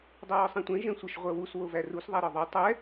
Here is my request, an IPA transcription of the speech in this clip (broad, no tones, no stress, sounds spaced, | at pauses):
dˤ œ w ɒ sˤ ɛ̃ tʷ ɛ̃ ʒ ɛ̃ sʷ ə ʃ ʁʷ œ w u s w o v æ r u s ðˤ æ ɾ ɒ ðˤ u tˤ ɛ